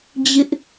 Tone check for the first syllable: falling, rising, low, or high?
high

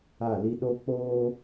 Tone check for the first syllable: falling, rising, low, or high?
falling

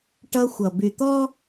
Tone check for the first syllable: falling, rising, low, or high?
high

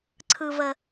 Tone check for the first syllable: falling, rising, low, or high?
low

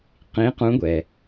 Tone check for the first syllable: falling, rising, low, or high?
rising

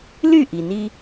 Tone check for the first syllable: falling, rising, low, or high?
falling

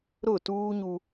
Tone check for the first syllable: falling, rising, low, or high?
falling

